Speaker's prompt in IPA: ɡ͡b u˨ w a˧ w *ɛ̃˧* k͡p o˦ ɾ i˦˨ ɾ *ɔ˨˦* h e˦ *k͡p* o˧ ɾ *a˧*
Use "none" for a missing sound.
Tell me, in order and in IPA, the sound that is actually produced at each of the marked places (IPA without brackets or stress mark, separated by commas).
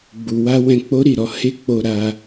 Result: ɛ̃˧, ɔ˨˦, k͡p, a˧